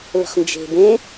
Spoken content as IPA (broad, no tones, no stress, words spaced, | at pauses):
lə̤χnd͡ʒe̤bẽ